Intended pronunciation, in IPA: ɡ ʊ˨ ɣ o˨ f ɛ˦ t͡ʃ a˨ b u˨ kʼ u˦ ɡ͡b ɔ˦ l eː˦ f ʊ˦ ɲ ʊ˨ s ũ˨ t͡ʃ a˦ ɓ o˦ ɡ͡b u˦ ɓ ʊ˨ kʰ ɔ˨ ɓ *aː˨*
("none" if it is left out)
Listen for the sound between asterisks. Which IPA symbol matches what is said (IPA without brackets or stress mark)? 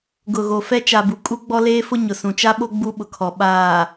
aː˨